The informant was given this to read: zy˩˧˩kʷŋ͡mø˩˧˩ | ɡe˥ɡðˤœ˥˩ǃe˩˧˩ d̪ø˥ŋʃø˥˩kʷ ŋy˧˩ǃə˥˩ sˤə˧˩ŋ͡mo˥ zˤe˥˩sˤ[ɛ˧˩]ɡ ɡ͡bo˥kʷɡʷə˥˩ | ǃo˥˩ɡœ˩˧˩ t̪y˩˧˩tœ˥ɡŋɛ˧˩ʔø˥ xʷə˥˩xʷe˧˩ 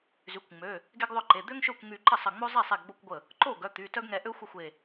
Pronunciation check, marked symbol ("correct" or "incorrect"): incorrect